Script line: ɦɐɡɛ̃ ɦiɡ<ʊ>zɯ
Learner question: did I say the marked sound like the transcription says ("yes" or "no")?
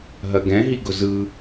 yes